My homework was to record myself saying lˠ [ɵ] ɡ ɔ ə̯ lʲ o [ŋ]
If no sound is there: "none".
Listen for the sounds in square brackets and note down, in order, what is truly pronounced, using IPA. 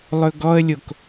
ɵ, k

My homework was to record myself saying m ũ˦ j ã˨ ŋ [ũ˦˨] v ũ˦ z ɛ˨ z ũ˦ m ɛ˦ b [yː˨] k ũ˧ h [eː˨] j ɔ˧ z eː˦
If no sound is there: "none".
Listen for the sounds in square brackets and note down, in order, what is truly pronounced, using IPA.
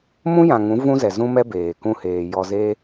ũ˨˦, eː˨, eː˨

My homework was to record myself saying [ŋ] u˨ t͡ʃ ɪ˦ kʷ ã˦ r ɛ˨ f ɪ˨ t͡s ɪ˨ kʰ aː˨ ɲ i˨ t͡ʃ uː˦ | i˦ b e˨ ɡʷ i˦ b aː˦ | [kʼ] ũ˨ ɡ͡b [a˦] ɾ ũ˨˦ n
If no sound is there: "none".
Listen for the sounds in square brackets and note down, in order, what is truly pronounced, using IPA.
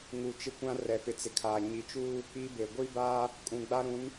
ŋ, kʼ, a˦

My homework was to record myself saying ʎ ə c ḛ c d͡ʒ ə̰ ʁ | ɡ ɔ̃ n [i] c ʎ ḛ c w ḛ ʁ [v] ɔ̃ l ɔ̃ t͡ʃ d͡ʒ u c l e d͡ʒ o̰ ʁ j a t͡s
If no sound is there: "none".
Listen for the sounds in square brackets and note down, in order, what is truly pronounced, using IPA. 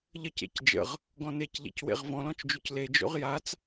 e, v

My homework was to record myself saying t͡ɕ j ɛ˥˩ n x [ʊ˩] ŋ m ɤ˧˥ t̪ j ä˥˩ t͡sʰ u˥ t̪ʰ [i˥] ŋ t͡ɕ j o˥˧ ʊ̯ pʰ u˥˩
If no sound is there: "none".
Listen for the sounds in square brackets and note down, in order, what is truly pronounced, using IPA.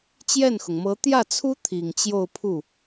ʊ˩, i˨˩

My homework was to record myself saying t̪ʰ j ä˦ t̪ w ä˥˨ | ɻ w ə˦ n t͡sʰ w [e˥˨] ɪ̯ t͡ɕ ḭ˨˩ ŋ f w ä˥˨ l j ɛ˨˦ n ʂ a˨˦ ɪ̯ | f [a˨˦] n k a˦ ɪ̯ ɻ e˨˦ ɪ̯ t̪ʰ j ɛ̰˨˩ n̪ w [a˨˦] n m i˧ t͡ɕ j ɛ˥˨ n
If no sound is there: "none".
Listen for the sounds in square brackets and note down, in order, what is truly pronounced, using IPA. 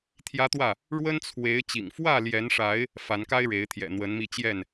e˨˦, a˨˦, ə˨˦

